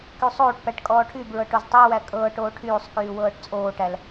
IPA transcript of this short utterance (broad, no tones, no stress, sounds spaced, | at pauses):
k y sˤ oː ʈ p æ ʈ kʼ ɔː ʈʰ y b ɹ ɤ ʈ o z tˤ ɛ w æ kʼ ɤː ʈ oː ʈʰ yː sˤ k yː w ɤː ʈ t͡sʼ oː ʈ æ l